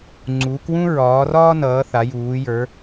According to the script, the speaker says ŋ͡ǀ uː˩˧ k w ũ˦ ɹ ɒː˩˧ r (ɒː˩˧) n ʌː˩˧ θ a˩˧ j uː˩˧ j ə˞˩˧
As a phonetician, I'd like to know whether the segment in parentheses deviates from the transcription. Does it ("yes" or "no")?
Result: yes